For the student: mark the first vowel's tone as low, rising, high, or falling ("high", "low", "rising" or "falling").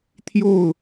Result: falling